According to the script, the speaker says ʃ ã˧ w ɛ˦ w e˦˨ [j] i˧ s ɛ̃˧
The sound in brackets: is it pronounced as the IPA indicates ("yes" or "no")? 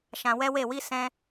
no